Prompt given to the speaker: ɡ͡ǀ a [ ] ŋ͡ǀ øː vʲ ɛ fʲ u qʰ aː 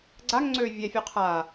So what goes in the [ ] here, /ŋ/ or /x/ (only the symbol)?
ŋ